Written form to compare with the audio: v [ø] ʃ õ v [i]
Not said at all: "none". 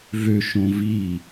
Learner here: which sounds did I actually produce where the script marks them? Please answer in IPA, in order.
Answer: ø, i

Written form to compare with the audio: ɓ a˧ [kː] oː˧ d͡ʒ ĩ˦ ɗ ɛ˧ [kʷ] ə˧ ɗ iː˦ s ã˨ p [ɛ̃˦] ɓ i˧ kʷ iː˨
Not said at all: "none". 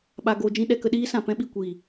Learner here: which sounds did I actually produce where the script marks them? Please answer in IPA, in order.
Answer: ɡ, k, ɛ̃˦

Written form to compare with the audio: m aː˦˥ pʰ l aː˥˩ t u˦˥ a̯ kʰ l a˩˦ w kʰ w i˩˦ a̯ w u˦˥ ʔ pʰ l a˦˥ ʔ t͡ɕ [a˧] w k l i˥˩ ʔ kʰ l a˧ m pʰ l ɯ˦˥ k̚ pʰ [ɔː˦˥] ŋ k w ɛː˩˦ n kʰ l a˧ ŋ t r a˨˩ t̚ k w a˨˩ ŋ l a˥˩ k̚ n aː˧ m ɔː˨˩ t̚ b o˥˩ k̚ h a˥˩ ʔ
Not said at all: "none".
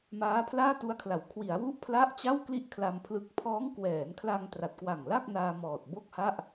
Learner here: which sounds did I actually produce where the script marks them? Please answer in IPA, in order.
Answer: a˥˩, ɔː˦˥

